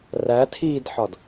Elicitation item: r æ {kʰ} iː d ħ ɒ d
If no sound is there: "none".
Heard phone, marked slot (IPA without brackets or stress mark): tʰ